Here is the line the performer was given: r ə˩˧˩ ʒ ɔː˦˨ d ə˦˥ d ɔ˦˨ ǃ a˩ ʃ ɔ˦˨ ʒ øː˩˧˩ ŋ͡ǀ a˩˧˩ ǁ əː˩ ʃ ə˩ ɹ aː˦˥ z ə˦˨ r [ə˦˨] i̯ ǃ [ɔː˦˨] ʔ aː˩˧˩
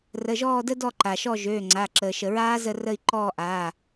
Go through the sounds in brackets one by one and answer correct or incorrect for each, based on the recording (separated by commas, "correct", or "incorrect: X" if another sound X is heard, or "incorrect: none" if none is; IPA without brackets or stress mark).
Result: correct, correct